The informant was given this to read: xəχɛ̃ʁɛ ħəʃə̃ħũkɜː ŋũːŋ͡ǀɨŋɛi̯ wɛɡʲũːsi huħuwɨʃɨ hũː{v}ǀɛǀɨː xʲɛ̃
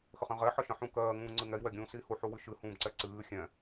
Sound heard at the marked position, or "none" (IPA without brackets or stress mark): b